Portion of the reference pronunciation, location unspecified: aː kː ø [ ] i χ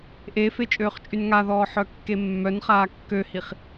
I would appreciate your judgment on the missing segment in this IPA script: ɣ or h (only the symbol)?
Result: h